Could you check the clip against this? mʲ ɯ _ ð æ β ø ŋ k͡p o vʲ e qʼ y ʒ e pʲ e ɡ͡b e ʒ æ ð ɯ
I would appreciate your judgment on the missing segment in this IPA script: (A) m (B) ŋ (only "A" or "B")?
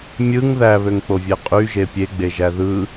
B